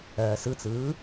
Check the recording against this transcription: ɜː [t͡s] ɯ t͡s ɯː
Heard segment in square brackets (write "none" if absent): s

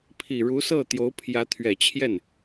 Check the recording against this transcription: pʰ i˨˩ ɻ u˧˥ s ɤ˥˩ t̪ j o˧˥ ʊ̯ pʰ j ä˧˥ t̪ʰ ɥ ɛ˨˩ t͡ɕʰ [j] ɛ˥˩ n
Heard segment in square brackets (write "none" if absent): j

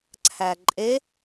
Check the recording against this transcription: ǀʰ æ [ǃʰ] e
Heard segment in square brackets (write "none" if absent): ǃʼ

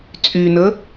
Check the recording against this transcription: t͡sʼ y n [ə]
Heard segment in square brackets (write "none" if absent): ə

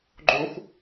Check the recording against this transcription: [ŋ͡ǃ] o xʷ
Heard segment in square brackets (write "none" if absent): ɡ͡ǃ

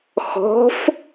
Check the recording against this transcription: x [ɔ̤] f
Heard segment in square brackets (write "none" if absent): ɔ̤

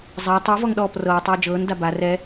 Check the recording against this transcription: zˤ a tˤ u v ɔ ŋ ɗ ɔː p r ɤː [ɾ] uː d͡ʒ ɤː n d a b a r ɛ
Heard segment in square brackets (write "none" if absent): tˤ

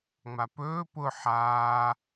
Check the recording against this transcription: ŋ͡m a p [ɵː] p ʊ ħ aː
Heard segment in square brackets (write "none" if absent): ɵː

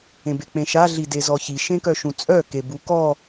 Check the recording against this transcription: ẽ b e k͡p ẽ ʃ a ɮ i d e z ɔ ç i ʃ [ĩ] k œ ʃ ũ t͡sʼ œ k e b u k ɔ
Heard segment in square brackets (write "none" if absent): ẽ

